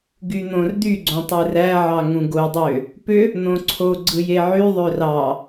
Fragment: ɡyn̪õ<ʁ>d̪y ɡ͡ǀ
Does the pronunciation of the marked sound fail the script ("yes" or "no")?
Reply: yes